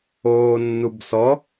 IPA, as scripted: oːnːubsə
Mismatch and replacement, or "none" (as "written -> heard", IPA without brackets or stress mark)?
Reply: ə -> ɔ